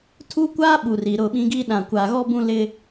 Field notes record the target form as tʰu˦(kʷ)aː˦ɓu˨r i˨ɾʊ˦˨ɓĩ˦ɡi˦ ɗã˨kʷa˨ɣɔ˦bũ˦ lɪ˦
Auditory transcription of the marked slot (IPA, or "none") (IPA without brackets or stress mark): kʷ